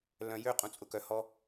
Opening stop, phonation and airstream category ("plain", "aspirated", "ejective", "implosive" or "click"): ejective